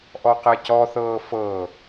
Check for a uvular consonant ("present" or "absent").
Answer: present